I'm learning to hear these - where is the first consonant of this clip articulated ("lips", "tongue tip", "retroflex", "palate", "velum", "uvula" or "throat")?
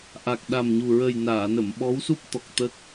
throat